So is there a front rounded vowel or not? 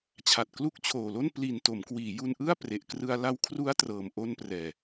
no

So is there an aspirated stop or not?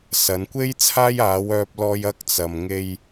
yes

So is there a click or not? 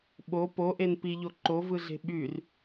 yes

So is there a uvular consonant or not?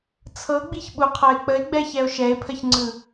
yes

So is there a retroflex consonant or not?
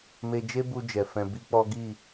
no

